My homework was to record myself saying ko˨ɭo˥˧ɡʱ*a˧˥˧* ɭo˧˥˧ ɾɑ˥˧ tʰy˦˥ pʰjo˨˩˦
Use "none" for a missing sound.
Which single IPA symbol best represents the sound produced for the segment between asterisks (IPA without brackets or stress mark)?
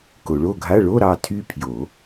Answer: a˧˥˧